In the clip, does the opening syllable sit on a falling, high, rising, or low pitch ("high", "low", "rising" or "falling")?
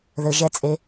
low